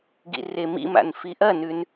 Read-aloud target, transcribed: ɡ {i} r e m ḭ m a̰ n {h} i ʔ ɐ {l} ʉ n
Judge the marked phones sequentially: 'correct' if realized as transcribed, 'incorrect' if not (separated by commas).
incorrect, incorrect, incorrect